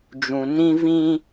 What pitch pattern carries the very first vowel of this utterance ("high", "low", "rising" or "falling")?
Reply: low